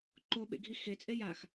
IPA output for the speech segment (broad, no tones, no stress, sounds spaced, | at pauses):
ǃ o ɓ ḛ ɡʱ i x e t͡sʼ e j a x